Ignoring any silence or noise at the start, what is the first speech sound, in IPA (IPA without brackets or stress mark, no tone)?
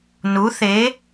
n